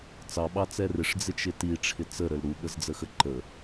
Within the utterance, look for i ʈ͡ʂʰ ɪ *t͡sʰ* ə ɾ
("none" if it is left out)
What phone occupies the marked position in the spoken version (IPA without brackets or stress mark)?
t͡s